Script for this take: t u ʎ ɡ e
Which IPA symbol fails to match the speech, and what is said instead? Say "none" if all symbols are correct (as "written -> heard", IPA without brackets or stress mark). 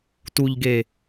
none